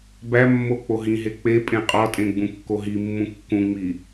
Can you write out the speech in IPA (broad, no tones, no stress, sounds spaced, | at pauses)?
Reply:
b æ mː o k͡p o ɦ ĩ ɦ e k͡p e pʼ ẽ qʼ ɒ tʼ ẽ ɡ͡b ũ kː o ɦ i mː ũ kː ũ ŋ͡m i